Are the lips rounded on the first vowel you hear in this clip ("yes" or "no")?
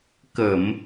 no